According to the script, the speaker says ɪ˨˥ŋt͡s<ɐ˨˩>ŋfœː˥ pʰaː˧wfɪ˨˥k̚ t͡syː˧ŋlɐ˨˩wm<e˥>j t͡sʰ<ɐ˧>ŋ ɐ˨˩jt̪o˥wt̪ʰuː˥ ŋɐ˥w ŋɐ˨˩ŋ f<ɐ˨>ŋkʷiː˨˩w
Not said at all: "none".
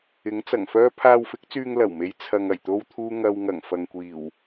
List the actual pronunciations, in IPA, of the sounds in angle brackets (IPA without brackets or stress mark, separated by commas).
ɐ˨˩, e˨˧, ɐ˧, ɐ˨